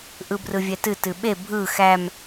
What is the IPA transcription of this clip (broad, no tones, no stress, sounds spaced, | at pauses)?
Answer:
ʔ ɯ b r ɯ vʲ ɛ t ɨ t ɨ ɓ e bʱ ɯ x æ m